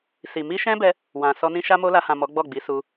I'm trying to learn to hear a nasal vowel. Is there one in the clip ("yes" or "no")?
yes